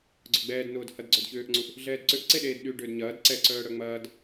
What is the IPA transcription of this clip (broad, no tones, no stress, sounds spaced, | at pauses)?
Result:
ɡ͡ǀ ʊ ɡ͡b ɛː d n ʊː d h ɐ d ɡ͡ǀ œ d ç ʏː ʔ ŋ͡ǀ u ʔ | ɮ ɛː d ǀ ʏ ʔ ǀ e ɗ eː d ɗ y ɖ ʏː d ɲ ɐː d ǀ ɛ ǀ œː ɽ œ ŋ͡m ɐː d